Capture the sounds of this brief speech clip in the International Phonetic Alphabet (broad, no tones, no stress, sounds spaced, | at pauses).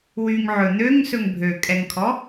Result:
w y ŋ ʕ ɵ n̪ ø ŋ s ɵ ŋ bʱ ø kʼ ɛ ŋ kʰ ɔ